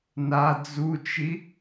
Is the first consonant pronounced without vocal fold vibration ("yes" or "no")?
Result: no